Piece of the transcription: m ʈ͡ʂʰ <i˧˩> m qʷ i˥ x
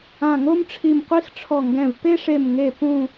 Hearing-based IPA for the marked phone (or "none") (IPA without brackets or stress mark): i˧˩